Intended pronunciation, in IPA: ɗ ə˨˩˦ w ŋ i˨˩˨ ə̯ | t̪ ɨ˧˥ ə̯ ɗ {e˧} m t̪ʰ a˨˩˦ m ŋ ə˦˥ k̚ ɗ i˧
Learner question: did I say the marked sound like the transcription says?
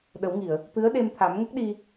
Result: yes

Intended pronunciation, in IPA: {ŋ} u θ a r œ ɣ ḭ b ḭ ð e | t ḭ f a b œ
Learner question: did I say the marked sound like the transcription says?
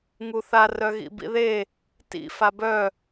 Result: yes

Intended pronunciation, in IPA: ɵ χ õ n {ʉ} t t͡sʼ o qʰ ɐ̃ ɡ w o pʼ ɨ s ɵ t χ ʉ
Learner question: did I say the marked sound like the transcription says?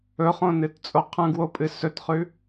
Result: no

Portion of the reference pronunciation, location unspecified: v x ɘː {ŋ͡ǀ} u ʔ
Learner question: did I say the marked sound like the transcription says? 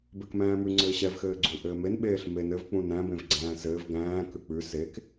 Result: no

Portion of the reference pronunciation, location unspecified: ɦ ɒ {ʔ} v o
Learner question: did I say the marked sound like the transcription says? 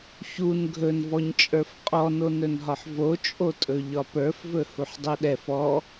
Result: no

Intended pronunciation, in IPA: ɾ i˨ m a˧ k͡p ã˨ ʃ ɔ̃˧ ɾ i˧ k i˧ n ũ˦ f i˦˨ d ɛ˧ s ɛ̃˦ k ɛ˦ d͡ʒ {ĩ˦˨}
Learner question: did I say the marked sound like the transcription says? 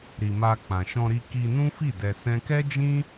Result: no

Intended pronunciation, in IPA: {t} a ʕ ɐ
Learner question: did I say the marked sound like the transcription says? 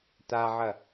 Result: yes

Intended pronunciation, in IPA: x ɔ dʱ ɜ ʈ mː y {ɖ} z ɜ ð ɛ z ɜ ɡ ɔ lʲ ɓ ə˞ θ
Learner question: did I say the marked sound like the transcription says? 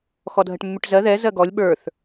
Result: no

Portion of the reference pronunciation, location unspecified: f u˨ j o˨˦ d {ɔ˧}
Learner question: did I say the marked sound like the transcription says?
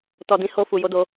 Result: no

